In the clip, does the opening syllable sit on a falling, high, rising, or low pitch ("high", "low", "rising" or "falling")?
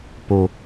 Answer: low